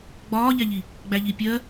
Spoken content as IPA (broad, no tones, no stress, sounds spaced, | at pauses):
ɡ͡b ɒː ʎ æ ʎ i | ɡ͡b æ ʎ i pʲ ɜ